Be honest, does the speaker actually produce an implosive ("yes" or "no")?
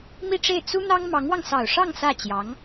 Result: no